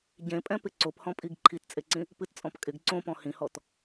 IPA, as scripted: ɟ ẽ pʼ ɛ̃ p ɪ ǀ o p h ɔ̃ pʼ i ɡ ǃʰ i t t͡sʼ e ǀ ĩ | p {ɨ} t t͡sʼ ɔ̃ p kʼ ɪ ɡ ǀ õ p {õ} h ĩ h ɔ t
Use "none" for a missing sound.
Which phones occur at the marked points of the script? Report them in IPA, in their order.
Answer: ɨ, ɔ̃

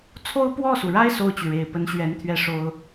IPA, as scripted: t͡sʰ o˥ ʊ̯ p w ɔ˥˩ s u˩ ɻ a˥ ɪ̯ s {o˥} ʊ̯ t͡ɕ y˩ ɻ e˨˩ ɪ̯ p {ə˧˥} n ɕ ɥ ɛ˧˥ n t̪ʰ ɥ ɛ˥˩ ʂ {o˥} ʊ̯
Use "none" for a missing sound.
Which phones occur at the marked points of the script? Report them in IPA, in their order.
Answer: o˥˩, ə˧˥, o˥

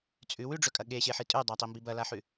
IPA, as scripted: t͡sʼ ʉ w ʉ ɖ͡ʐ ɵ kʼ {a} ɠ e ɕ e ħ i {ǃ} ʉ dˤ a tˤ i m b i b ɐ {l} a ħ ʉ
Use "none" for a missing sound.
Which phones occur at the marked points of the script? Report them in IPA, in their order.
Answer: ɐ, tʼ, l

